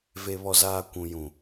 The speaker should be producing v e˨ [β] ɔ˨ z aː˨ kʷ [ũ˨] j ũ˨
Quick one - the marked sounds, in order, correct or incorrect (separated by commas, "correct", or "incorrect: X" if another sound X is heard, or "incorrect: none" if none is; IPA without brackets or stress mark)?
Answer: correct, correct